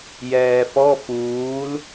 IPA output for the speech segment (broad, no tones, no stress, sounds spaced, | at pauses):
j ɛː f ɔ f uː l